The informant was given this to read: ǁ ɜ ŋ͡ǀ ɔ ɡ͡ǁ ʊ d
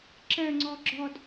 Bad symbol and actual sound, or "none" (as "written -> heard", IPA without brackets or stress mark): ʊ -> ɔ